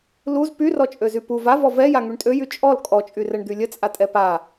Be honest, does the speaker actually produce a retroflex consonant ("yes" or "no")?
yes